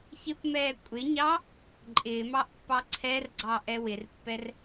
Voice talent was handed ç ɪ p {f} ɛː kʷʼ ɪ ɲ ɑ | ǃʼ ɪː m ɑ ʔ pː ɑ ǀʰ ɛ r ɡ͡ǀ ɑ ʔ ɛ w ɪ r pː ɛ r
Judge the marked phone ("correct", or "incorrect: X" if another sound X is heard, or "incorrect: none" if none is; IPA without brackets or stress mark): incorrect: m